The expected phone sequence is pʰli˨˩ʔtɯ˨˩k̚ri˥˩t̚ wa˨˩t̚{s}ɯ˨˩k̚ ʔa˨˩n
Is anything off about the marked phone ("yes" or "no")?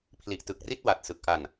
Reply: no